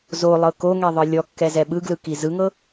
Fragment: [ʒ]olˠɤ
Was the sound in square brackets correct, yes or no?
no